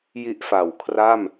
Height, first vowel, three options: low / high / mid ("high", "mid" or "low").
high